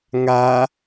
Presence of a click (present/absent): absent